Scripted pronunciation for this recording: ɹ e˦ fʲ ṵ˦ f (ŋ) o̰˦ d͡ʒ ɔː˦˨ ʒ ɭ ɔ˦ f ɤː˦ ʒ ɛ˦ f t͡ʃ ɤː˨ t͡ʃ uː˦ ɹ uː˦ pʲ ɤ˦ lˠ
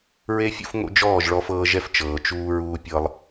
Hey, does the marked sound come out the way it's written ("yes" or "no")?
yes